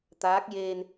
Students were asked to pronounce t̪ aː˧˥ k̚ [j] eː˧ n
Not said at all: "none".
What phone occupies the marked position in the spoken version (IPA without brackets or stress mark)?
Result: j